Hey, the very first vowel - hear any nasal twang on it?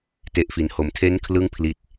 no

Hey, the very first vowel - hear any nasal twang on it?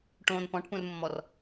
yes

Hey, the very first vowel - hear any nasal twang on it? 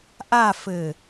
no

